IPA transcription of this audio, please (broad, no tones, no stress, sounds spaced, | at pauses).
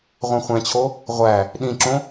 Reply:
ʁʷ ɛ̃ χʷ ɛ̃ t͡ɕʰ o | ʁʷ æ | ɗ ĩ ǁ õ